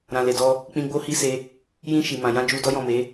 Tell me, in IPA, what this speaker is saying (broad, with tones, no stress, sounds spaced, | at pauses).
ɾ ã˨ l e˨ d ɔ˧ | k͡p ĩ˧ ɡ͡b o˦ h i˦ s e˧ | j ĩ˧ ʃ i˨ m ã˨ j ã˧ d͡ʒ u˧ d ɔ˦ j ɔ̃˦˨ m e˨˦